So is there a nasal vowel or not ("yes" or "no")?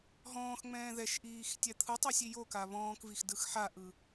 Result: yes